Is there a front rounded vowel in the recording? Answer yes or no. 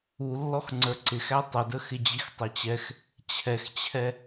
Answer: no